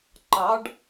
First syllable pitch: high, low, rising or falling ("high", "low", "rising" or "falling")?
rising